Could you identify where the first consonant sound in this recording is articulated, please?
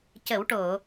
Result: palatal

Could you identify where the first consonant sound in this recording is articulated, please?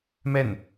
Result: labial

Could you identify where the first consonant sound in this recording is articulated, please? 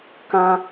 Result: velar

